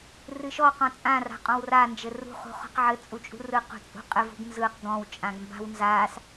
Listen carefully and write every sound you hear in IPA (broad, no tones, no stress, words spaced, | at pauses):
rɨʃɔ qɔ̃t͡sʼã ra̤qʼɔ̃wra nd͡ʒɘrṳ χṳχɔ̤qʕɘ t͡sʼut͡ʃʼṳrɯ qṳt͡sʼṳqʼɘv ṳɡnzɯq ɡɔ̃w t͡ʃʼãɡmba̤wnzas